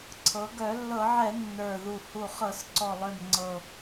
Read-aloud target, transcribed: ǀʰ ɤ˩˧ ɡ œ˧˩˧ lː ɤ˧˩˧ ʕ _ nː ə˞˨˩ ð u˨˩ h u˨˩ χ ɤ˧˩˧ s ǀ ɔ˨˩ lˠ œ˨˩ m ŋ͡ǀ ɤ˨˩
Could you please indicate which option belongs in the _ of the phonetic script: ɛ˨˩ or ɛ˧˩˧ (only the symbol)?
ɛ˧˩˧